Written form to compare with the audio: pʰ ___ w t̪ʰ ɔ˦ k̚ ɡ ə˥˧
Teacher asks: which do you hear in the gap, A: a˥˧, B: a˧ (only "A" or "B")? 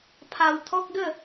B